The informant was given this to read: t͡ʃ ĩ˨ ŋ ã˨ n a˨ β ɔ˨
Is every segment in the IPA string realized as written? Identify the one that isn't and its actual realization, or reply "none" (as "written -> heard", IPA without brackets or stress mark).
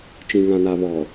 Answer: none